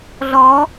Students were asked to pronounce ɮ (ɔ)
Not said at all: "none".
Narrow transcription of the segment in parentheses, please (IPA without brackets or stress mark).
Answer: ɔ